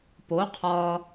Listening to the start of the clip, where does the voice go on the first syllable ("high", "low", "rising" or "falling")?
rising